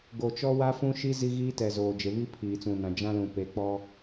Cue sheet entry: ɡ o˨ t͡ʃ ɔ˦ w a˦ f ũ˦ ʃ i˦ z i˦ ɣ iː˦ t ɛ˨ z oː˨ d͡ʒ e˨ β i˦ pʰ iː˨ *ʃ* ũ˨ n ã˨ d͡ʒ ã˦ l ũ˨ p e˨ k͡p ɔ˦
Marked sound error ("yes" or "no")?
yes